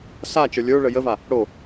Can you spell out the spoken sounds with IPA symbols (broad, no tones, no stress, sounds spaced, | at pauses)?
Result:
s a t͡ʃ ə˞ lʲ ə˞ ɭ ə j ə v a | ɽ o